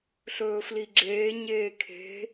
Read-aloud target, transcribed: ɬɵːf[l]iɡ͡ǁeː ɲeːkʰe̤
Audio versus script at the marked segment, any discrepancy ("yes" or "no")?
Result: no